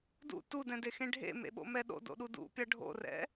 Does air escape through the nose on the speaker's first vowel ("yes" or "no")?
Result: no